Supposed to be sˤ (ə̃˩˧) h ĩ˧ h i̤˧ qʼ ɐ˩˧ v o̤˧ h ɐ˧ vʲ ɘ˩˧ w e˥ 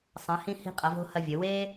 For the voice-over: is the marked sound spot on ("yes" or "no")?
no